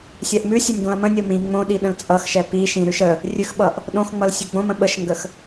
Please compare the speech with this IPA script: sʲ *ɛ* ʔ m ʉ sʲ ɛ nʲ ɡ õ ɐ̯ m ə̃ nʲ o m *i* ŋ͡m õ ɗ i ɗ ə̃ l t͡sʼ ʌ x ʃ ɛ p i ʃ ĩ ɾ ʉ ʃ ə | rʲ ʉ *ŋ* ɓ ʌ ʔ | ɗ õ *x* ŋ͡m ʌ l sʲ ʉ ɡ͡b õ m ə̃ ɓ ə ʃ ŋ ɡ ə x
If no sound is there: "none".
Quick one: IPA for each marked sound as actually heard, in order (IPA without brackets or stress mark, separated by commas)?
ɛ, ĩ, x, x